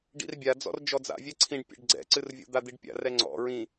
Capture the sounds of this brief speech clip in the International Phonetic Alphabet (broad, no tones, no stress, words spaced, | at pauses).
ɖḭrbʲad͡zɔ̰r d͡ʒɔd͡za̰vʲɛ ǀʰĩɖpʲɛ̰ɖ ɡ͡ǀɛ̰ǀɨrvʲo̰ d̪ad̪iɖpʲa̰ rɛŋ͡ǀɔ̰ ɹĩ